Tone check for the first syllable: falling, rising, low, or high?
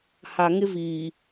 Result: low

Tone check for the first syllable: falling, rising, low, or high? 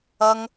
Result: high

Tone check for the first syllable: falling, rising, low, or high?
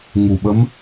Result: low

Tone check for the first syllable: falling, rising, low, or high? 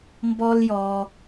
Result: high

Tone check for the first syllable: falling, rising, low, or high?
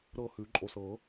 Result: falling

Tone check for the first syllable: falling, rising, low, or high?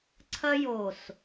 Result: high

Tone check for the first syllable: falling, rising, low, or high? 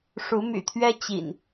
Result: rising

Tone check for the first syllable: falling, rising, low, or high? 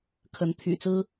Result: rising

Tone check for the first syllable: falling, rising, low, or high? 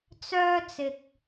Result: high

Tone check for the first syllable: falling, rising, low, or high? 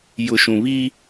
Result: low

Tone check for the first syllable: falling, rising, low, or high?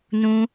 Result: high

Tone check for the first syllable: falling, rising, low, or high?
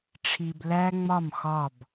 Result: low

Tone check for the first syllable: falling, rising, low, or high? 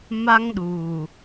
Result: high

